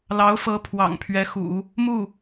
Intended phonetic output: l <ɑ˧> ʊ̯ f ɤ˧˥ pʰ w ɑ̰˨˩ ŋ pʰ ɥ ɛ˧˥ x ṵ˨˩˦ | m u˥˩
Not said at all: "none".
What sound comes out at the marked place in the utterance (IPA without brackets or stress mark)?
ɑ˧˥